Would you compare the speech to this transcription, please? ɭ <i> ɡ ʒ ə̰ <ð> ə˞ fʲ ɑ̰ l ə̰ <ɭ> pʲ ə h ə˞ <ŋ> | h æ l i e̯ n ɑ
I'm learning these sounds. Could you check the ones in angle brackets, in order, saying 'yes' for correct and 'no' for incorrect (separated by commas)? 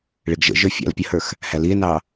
no, no, no, no